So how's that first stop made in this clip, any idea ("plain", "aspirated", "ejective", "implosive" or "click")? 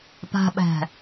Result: plain